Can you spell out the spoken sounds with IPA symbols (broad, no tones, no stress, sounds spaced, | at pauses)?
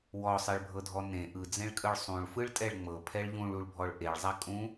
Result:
w ɔ sˤ e ɭ bʱ ɤ dʱ ɔ n ẽ ʔ ɯ d͡z ẽ ɭ kʼ ɯ ɭ sˤ ũ ɭ f ɯ ɭ tʼ ɛ ɭ ŋ͡m ɤ pʰ ɛ ɭ ʎ ũ ɭ u ɭ bʱ ɔ ɭ ʔ e ɭ zˤ a kʼ ũ